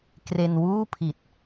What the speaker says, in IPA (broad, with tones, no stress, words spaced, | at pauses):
kre˧nwuː˥˩pʰi˨˩t̚